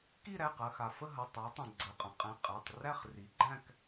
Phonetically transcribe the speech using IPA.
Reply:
k i˦˨ ɾ æ˩˧˩ q ɐ˦˨ x a˩ f ə˦˨ ɦ ɐ˩˧˩ tˤ æ˩˧ tˤ ɐ̃˩ ɡ͡ǀ ə˩˧˩ qʼ ɐ̃˩˧ qʼ æ̃˩˧˩ qʼ æ˩˧˩ tˤ r æ˦˨ χ r i˩˧ ɡ͡ǃ æ̃˦˨ k

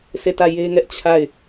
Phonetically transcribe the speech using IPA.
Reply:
sʰ e˦˨ t ä˦˨ j e˦ ŋ ɛ˦ ʔ t͡ɕʰ a˦˨ ɪ̯

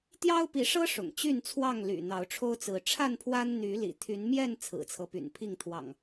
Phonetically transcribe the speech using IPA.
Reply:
t̪ j ɑ˦ ʊ̯ p i˨˦ ʂ ɤ˦ ʂ ʊ̰˨˩ ŋ t͡ɕ y˥˨ n t͡sʰ w ɑ˥˨ ŋ l y̰˨˩ n̪ ɑ˨˦ ʊ̯ ʈ͡ʂʰ o˦ ʊ̯ t͡s ɹ̩˨˦ ʈ͡ʂʰ a˥˨ n pʰ w a˦ n n̪ y˨˦ l ḭ˨˩ t̪ʰ y˨˦ n m j ɛ˥˨ n t͡sʰ ɹ̩˨˩ t͡sʰ ɤ˦ p y̰˨˩ n pʰ i˥˨ ŋ t̪ʰ w ɑ̰˨˩ ŋ

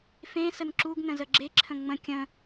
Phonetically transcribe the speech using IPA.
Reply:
f ẽ s ə n ǁ u ɡ n ə̃ z ə ɡ͡ǁ e ǁʰ ə̃ ŋ͡m ə̃ kʲ ə̃

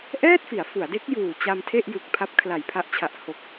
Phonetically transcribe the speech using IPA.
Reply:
ʔ ɛː˥˩ t̚ f i˩˦ a̯ f u˩˦ a̯ d e˦˥ k̚ j uː˨˩ t͡ɕ a˧ m tʰ e˥˩ ʔ j ɯ˨˩ k̚ pʰ a˦˥ p̚ kʰ l a˨˩ j pʰ a˦˥ ʔ t͡ɕʰ a˨˩ ʔ h o˨˩ k̚

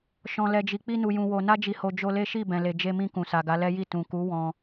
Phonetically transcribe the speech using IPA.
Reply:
ʃ ɔ̃˨ l ɛ˨ d͡ʒ i˨ k͡p i˧ n u˨ j ũ˨ w o˨ n a˧ d͡ʒ i˨ h o˨ d͡ʒ o˧ l e˦ ʃ i˦˨ b ɛ̃˨ l e˨ d͡ʒ e˧ m ĩ˧ k ũ˨ s a˨ ɡ a˨˦ l ɛ˦ j i˦˨ t ũ˨ k u˨˦ w ɔ̃˧

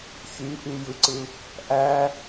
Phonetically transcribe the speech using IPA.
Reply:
ç y ʔ y j ɯ ǀ ɯ | ʔ æ

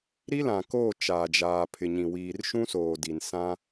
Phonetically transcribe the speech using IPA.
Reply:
ɾ i˦ l ã˨ k oː˦˨ t͡ʃ aː˨ d͡ʒ aː˨ pʰ ɪ˨ ɲ ĩ˨ w iː˨ r ʃ ũ˦ s oː˨ d i˨ n s ã˦

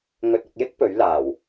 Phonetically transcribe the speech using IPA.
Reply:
ŋ ɵ˨ t̚ ʊ˨ k̚ j ɪ˥ k̚ p ɵ˨˥ ɥ l aː˨˩ w

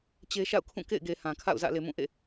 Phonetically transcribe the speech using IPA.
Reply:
t͡ɕ e˦ ʃ a̰˦˨ ʊ̯ kʰ ũ˦˨ k ḛ˦˨ ɪ̯ ɡ e˨ h ã˨ kʰ a̰˦˨ ʊ̯ z ä̰˦˨ l e˨ m ũ˦˨ ʔ ḛ˦˨

